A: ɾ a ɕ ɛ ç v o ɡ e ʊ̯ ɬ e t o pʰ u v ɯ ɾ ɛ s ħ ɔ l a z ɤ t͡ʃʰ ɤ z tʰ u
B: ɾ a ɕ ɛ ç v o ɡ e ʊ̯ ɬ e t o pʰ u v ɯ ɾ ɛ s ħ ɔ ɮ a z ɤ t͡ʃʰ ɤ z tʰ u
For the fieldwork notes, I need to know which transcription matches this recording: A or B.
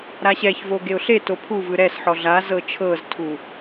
B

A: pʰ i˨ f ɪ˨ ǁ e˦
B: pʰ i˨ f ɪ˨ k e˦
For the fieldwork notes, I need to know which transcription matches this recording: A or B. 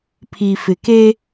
B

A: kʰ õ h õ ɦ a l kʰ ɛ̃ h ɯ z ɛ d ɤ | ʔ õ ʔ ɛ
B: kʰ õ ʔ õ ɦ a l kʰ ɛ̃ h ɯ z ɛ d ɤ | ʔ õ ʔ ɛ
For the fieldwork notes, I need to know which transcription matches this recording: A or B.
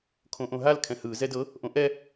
B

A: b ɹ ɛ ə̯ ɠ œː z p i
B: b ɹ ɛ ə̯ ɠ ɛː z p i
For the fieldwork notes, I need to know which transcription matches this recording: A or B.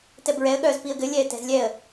A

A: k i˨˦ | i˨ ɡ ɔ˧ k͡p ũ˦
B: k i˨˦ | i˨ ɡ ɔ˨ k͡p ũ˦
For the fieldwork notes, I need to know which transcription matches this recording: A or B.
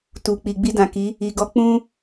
A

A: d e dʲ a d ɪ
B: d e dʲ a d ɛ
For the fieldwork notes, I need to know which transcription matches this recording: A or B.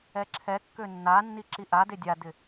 A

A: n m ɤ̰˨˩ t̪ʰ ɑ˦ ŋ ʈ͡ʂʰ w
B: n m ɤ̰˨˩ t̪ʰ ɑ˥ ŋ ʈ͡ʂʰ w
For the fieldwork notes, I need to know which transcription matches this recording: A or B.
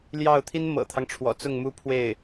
A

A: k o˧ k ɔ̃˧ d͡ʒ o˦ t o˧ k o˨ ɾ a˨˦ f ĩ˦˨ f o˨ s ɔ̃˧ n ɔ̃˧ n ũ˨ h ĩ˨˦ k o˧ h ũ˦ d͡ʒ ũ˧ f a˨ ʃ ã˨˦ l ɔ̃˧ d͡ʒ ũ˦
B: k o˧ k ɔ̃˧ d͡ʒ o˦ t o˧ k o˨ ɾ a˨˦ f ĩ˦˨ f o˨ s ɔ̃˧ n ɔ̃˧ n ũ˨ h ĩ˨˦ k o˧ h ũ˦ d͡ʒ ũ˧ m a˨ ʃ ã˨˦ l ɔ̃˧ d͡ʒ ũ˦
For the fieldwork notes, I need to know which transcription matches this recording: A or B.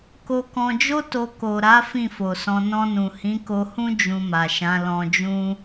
B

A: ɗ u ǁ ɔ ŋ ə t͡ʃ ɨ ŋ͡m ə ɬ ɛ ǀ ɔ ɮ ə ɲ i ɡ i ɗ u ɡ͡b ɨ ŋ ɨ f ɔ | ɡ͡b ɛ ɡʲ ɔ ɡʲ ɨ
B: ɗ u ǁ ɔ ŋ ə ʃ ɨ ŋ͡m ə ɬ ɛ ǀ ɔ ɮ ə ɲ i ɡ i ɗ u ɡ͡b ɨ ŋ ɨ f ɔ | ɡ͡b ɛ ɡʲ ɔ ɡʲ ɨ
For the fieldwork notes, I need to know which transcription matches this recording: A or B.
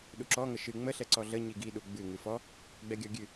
B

